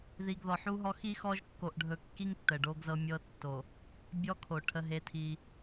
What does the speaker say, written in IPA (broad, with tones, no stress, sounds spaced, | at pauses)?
ð i˨ ɡ ð ɔ˨ ħ u˦ ɦ ɔ˦ x i˦ x ɔ˦ ʒ kː o˨ ʔ ɖʱ ɵ˨ kː i˦ ŋ tː ə˨ ɖ o˦ ɡ z ɤ˦ mʲ ɤ˦ tː o˨ | bʲ ɔ˦ kʰ o˨ ʈʰ ə˦ ɦ e˦ tʰ i˦